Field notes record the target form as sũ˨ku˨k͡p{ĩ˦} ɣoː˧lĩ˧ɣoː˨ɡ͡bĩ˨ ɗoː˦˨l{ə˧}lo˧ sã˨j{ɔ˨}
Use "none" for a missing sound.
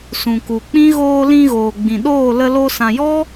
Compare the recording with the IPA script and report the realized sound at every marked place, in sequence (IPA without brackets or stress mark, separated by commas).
ĩ˦, ə˧, ɔ˦